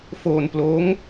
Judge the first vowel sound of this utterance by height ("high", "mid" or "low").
mid